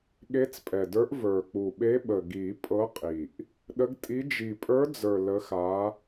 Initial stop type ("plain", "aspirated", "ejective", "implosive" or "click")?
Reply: implosive